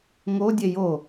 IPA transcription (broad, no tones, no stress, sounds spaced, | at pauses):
ŋ o dʲ e j o